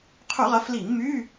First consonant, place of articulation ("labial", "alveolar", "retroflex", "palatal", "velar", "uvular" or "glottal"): uvular